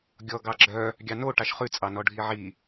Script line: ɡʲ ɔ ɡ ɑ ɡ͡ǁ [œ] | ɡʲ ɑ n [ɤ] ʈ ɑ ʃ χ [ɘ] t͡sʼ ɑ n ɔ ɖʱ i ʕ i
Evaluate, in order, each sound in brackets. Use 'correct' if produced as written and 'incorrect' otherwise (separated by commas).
correct, incorrect, incorrect